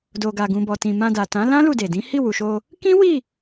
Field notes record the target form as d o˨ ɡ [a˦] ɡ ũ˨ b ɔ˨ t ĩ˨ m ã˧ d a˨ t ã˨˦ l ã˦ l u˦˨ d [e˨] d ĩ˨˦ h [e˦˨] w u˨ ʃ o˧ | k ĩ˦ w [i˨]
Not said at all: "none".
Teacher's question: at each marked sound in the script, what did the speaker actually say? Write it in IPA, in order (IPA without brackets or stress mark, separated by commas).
a˨, e˨, i˦˨, i˦˨